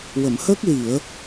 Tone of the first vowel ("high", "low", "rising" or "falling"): low